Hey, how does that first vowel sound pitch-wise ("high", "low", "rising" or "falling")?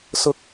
high